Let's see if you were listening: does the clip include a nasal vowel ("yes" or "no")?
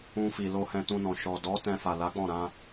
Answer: yes